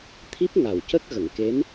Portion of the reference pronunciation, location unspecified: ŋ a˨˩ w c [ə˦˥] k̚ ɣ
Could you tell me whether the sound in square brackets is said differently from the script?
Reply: no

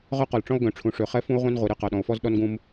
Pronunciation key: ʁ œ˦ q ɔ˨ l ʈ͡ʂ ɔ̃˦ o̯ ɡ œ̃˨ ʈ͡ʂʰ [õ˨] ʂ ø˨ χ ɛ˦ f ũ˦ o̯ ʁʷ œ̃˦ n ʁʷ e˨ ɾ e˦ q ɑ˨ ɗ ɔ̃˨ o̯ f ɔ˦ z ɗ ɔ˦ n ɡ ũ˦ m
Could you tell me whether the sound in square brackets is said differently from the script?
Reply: yes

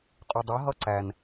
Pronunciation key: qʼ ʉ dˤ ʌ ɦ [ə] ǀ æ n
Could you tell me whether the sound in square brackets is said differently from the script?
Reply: yes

